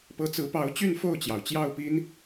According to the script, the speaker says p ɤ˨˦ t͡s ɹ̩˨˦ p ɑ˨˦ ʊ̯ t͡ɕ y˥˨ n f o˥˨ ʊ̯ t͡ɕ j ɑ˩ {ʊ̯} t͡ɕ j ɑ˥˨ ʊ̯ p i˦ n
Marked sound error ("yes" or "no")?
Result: no